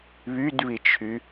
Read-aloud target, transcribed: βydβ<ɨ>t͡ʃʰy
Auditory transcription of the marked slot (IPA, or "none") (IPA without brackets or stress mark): i